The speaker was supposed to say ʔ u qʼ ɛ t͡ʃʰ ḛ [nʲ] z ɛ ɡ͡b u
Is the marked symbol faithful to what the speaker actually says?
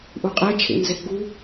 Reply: no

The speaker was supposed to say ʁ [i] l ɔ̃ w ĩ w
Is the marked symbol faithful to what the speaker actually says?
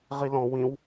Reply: yes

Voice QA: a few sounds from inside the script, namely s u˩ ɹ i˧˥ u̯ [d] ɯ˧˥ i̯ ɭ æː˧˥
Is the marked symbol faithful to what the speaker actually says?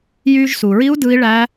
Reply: yes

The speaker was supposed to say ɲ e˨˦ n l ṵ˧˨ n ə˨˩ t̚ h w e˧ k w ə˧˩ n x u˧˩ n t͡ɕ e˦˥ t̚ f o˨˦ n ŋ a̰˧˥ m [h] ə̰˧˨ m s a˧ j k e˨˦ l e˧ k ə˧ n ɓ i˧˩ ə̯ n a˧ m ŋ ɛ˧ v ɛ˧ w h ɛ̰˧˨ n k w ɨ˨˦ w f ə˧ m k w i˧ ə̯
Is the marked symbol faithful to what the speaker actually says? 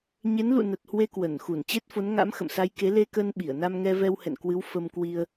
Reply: no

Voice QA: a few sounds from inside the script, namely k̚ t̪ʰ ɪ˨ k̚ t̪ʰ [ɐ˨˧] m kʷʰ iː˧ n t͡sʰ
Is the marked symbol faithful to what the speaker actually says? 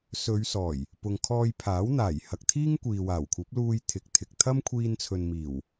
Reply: no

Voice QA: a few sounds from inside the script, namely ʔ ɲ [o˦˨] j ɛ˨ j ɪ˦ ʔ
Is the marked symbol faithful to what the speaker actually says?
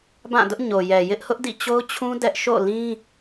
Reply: no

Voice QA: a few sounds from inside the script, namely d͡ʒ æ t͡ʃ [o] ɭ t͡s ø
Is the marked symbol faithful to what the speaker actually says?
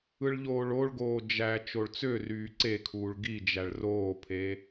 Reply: yes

